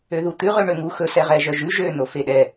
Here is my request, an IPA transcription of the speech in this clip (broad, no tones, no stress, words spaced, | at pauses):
øðut̪ʉ ʁøɳøŋu xɵ sɛʁɛʒœʒʉ ʒø nofeɗɛ